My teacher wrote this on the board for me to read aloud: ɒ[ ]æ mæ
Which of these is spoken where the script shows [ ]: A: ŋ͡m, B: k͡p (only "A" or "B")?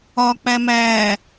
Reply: B